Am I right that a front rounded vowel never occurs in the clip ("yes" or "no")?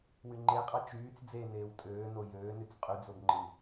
no